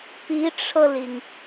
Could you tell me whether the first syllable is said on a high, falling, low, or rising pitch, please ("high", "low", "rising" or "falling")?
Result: rising